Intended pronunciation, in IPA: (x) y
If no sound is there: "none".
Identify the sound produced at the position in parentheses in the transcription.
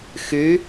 x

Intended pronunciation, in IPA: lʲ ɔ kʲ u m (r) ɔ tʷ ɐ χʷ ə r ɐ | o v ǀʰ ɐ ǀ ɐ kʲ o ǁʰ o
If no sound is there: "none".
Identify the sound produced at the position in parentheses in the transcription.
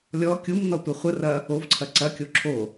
n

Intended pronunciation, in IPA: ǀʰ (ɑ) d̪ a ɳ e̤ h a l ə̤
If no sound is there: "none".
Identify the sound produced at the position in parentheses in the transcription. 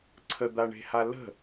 ə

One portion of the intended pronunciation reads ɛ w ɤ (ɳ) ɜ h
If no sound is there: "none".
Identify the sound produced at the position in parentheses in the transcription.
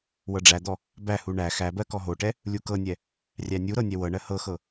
ɳ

